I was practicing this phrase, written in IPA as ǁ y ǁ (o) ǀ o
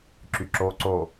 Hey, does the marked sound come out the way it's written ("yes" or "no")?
yes